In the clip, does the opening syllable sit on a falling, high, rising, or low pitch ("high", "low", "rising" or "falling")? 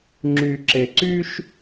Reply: low